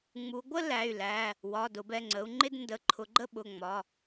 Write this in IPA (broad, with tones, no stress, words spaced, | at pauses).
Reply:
ŋ͡mu˩˧ɡʷə˥˧ læ˩˧˩y̯læ˩˧˩ | wɒ˩˧˩ dʊ˩˧bɛ˩˧˩ŋ͡ǀə˩˧u̯ ŋ͡ǃɪ˥˧dndə˩˧˩ǃʰʊ˩˧ɡ͡ǃə˥˧ ɓʊ˩˧˩ŋ͡mɒ˩˧˩